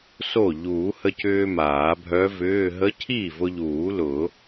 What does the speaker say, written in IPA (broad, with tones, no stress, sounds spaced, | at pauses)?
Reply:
s o˥˩ ʎ uː˨˩˦ h ə˧ c ʏː˧ m aː˨˩˦ bʱ œ˧˥ v ʏː˧˥˧ ɦ ə˧˥ cʰ iː˥˩ v ʊ˧ ʎ uː˨˩˦ l ʊ˨˩˦